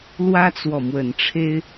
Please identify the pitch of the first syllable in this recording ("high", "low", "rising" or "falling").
high